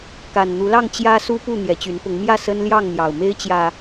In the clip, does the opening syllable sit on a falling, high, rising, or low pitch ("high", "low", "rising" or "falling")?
low